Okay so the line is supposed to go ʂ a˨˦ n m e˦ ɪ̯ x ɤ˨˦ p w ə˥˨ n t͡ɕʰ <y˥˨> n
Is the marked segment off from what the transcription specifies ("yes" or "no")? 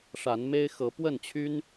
yes